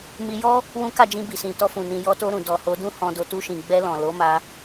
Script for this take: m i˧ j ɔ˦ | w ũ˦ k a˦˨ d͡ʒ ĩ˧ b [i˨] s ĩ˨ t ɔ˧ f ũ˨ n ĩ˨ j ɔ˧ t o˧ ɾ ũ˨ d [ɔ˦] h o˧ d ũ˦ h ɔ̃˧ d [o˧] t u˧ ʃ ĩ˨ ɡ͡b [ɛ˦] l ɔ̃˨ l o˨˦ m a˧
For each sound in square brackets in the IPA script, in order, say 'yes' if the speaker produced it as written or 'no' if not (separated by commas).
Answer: yes, no, yes, no